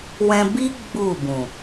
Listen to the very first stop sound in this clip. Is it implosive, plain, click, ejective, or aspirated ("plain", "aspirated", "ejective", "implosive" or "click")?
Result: plain